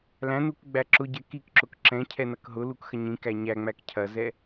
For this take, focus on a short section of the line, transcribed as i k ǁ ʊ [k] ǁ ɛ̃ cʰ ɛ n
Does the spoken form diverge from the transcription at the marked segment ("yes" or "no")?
no